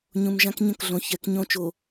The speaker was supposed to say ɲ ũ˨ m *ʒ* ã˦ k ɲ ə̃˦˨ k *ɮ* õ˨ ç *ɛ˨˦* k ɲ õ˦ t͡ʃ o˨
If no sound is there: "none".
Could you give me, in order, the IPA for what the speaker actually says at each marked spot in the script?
ʒ, ɮ, ɛ˨˦

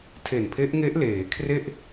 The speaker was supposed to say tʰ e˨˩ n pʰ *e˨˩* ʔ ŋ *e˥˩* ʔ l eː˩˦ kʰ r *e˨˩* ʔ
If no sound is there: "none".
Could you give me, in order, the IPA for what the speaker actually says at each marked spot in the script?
e˦˥, e˦˥, e˥˩

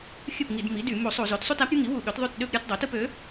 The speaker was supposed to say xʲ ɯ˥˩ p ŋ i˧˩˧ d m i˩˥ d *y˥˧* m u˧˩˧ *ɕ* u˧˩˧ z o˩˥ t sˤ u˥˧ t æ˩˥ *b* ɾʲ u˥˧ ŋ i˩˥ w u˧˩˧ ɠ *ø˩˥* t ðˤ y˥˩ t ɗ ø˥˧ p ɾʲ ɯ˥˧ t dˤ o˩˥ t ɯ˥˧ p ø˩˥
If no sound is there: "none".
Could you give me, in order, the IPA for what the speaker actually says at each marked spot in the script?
y˧˩˧, sˤ, p, ø˩˥

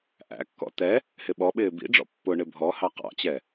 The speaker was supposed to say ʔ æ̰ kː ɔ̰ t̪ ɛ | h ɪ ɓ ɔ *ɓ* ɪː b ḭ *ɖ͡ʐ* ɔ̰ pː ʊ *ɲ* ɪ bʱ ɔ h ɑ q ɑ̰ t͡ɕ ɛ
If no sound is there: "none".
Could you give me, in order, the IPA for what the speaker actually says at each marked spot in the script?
ɓ, ɖ͡ʐ, ɳ

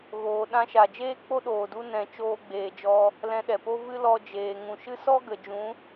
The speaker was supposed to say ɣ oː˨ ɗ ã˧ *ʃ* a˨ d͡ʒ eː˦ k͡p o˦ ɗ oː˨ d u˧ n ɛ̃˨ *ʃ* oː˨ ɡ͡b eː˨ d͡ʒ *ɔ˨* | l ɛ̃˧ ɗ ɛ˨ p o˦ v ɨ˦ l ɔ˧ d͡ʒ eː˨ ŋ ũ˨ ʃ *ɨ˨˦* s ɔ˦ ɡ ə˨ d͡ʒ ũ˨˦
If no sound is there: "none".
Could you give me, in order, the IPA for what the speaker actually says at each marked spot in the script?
ʃ, t͡ʃ, ɔ˧, ɨ˦

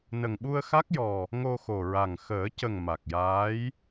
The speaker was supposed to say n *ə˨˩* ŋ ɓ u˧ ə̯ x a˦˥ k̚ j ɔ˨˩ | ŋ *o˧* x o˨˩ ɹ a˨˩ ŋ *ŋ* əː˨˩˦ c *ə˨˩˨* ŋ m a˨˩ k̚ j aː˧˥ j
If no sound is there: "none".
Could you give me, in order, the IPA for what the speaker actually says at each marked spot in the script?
ə˨˩, o˧, x, ə˨˩

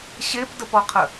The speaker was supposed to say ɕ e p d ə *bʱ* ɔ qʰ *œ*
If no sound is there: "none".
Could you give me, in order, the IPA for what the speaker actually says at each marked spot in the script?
p, ə

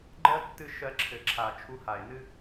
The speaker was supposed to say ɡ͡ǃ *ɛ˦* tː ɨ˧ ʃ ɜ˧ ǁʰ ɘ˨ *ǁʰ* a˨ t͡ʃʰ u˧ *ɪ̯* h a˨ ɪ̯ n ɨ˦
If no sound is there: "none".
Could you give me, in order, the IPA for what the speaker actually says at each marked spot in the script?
ɜ˦, ǁʰ, none

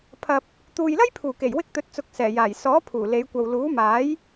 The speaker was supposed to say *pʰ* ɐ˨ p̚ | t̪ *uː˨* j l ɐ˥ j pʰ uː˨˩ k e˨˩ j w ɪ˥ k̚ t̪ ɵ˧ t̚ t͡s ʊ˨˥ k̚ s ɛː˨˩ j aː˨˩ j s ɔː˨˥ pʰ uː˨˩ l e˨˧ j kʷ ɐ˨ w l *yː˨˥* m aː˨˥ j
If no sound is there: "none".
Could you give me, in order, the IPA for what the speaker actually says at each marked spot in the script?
pʰ, uː˨, uː˨˥

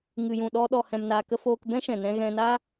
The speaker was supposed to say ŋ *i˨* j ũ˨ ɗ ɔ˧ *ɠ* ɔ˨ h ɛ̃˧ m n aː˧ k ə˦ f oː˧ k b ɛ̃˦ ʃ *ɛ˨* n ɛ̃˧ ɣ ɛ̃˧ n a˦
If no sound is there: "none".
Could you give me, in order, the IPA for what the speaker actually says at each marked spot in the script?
ɨ˨, ɗ, ɛ̃˨

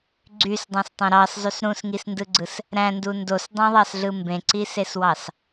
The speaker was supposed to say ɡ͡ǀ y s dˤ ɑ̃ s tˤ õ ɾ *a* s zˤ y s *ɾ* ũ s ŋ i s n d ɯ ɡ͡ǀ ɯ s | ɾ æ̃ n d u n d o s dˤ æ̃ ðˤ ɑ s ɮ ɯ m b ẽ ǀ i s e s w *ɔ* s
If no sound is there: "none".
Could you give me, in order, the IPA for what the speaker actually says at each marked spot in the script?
ɑ, ɾ, ɑ

